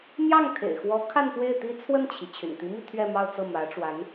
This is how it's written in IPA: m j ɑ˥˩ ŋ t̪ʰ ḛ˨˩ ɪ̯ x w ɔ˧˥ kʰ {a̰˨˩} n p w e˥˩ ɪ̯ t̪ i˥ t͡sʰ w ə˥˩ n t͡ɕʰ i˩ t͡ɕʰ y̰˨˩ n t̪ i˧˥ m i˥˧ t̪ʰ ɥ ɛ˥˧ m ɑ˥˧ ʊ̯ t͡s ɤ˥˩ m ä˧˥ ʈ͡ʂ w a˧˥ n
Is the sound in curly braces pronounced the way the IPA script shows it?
no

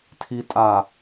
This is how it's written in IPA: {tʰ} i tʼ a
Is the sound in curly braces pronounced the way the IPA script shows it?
yes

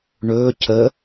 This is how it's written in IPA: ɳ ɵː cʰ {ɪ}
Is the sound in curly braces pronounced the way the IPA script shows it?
no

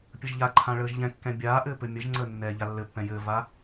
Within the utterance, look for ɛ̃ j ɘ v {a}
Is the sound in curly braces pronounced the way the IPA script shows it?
yes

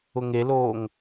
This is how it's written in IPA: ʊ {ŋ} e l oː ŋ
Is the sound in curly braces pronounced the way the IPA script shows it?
yes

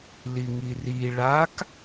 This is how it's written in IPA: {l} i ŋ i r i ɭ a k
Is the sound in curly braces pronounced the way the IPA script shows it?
yes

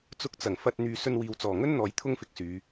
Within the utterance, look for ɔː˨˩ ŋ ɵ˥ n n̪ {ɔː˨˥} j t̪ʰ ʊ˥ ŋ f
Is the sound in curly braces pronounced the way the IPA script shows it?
yes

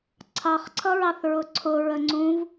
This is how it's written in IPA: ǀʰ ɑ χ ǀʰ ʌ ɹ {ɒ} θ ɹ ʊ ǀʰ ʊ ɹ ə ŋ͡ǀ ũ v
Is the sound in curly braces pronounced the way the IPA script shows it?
no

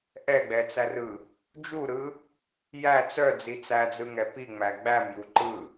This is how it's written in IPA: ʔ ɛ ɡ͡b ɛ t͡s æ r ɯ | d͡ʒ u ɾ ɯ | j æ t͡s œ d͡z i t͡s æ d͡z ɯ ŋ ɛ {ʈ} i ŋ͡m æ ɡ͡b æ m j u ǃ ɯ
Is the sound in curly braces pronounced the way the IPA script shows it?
no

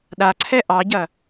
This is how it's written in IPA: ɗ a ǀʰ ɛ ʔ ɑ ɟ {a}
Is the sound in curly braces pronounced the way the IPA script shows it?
no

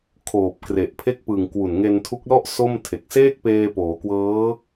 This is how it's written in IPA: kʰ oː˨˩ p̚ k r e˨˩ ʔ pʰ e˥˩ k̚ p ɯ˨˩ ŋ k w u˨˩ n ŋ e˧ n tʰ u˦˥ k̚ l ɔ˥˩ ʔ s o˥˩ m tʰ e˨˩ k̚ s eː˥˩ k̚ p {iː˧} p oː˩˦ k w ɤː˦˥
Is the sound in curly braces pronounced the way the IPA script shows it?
no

